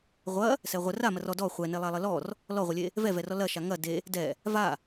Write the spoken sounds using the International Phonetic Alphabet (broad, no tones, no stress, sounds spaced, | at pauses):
ʁʷ ɐ | s ɛ ʁʷ ə r a m ɐ r ɔ d ɔ χʷ ɛ n e lˠ a lˠ ə l ɔ r | l ɔ ʁʷ ə lʲ e | v ɛ v ɛ r ɔ l ɐ ʃ a ŋ ɐ d e | d ɛ | v a